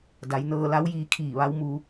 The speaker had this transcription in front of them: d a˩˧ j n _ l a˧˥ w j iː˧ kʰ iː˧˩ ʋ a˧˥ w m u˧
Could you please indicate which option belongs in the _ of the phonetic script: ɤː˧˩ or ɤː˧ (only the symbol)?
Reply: ɤː˧